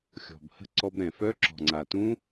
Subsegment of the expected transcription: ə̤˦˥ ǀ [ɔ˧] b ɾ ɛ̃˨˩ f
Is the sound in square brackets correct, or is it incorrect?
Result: correct